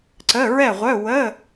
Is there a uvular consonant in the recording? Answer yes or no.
yes